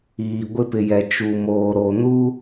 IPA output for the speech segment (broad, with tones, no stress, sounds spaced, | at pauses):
iː˨ ɡʷ ɪ˦ p ɪ˨ j ɛ˨ t͡ʃ u˨ m oː˨ ɾ o˨ n u˦